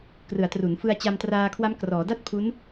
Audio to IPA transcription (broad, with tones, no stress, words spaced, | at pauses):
krɯ˩˦a̯tru˩˦nfɯ˧a̯ t͡ɕa˧mtraː˧kʰwa˦˥m krɔː˩˦da˥˩t̚pʰu˦˥n